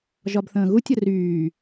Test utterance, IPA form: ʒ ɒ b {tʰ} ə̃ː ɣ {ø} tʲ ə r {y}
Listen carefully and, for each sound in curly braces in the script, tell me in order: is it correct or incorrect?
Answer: incorrect: θ, incorrect: u, incorrect: yː

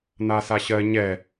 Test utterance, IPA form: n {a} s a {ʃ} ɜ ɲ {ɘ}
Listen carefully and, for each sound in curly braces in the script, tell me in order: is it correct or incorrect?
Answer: correct, incorrect: ɕ, incorrect: ɛ

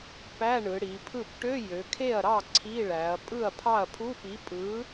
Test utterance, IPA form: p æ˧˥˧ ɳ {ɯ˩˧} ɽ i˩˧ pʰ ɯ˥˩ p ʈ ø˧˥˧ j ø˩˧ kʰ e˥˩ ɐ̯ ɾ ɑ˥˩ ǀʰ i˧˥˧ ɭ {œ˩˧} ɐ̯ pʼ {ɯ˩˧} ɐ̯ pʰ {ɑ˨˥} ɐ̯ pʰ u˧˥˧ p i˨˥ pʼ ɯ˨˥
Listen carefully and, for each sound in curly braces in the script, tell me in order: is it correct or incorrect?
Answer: correct, incorrect: æ˩˧, incorrect: ɯ˥˩, incorrect: ɑ˥˩

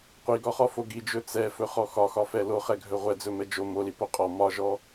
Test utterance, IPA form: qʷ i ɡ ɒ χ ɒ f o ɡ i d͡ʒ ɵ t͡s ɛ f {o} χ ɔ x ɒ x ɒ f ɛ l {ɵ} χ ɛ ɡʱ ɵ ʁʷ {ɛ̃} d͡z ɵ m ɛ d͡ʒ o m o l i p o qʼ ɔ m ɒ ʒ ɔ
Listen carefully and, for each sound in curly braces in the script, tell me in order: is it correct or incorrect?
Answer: incorrect: ɵ, incorrect: o, incorrect: ɛ

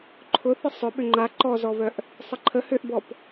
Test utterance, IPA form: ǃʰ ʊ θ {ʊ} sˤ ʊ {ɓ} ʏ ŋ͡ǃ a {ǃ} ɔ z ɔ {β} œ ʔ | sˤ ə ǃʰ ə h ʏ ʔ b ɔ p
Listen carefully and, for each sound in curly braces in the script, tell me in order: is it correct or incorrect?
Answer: incorrect: ə, correct, correct, correct

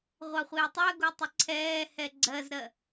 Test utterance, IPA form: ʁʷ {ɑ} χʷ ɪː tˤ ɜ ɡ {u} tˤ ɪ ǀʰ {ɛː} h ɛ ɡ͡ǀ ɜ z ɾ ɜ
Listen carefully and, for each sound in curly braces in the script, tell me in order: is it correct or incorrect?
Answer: correct, correct, correct

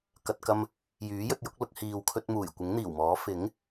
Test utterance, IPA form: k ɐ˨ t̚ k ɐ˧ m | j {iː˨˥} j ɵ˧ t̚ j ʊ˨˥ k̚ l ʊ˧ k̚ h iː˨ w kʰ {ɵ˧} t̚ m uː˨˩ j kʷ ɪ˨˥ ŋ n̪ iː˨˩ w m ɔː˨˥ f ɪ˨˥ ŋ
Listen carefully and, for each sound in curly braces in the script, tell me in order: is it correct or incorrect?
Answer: incorrect: yː˨˥, correct

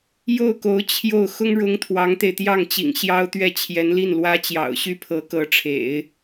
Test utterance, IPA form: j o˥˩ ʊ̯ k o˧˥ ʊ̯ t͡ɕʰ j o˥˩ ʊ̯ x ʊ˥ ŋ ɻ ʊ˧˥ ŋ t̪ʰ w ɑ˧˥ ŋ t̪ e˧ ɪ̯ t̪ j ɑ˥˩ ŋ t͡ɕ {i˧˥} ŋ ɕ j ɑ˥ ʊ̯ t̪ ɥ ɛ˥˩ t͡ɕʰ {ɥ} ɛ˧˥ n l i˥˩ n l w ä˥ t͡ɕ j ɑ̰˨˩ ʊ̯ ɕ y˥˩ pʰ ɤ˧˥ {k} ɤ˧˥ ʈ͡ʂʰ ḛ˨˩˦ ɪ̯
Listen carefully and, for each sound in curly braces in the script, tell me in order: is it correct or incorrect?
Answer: incorrect: ḭ˨˩, incorrect: j, correct

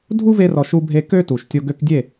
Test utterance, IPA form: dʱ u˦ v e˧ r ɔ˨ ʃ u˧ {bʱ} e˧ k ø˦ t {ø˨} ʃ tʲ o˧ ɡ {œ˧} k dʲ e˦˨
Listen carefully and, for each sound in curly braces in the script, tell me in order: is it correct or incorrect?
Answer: correct, incorrect: u˨, incorrect: ø˧

